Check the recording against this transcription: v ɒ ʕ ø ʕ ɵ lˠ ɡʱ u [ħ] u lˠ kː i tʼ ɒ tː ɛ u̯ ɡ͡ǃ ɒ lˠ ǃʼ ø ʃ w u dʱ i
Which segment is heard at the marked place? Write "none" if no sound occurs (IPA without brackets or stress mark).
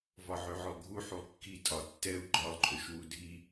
ħ